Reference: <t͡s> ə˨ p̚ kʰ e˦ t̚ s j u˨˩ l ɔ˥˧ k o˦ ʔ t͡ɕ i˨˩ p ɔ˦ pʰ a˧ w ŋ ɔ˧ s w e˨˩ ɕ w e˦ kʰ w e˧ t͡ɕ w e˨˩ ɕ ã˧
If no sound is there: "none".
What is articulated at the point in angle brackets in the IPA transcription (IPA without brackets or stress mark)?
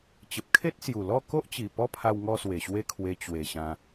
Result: t͡ɕ